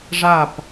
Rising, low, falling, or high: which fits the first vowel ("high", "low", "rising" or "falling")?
falling